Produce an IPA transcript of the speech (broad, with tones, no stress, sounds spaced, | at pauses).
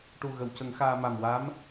ʈ u˨˩ ɣ ə˨˩˨ w c ə˨˩˦ ŋ x aː˧ m a˨˩ m w a˧˥ m